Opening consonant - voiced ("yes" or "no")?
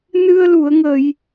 yes